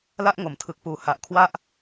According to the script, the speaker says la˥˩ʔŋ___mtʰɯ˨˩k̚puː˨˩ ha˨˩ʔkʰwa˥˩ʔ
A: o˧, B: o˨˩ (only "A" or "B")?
B